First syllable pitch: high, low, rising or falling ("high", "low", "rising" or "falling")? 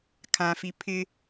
low